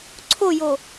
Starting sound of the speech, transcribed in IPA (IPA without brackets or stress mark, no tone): ǀʰ